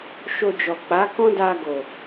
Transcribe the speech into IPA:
ʃ o˧ d͡ʒ ɔ˨ k͡p a˨˦ k ɔ̃˦ d a˧ ɡ o˨

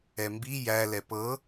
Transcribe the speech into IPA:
ɛ m b i j æ l ɛ p ɤ

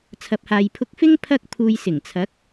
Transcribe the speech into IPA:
t͡sʰ ɐ˨ p̚ h aː˨ j pʰ ʊ˧ k̚ f ɪ˥ ŋ pʰ ɐ˥ k̚ pʰ uː˧ j s ɪ˨˩ ŋ t͡sʰ ɐ˨˥ k̚

